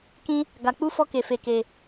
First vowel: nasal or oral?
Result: nasal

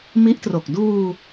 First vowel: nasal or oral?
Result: oral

